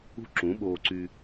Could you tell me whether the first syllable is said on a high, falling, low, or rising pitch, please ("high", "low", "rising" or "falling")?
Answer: high